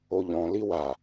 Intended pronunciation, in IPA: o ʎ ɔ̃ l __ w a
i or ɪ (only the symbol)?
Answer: i